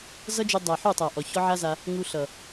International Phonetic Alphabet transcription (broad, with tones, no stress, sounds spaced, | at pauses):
z ʌ˦ d͡ʒ u˧ dˤ a˨ ħ u˦˨ tˤ a˨ ʔ ɔ˨ ç ɔ˦ ʕ a˦ z a˧ | ŋ u˧ ɬ ʌ˨